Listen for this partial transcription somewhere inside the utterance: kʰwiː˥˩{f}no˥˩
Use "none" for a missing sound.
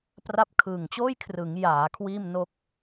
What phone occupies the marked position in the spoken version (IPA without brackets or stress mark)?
m